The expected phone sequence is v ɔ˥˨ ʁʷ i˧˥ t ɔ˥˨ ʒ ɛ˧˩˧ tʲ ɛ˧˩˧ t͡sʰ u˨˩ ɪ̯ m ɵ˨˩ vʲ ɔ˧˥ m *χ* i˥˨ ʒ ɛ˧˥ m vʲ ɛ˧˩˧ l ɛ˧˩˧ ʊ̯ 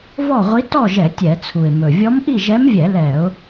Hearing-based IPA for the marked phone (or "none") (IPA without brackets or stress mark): ʔ